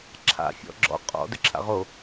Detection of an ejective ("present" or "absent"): present